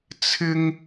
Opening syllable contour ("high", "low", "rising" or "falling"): high